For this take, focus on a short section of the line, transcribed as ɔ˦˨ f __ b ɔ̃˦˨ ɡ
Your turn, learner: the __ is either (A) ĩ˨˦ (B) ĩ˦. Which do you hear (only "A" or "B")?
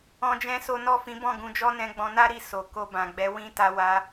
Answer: A